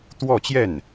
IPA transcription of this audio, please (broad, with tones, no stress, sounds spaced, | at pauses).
t̪ w ɔ˥˧ t͡ɕ j ɛ˥˩ n